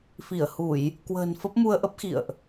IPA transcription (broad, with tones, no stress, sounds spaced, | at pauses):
f i˧˩ ə̯ h u˧˩˨ j | k w ə̤ː˨˩ n f ə˦˥ p̚ m u˧ ə̯ ʔ ə˦˥ p̚ x ḭ˧˨ ə̯ ʔ